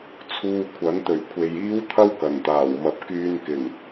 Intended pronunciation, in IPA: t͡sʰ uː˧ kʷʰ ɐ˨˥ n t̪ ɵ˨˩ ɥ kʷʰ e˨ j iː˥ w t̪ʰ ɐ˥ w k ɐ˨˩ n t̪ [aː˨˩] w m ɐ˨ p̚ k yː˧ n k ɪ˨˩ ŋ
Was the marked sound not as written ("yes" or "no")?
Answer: no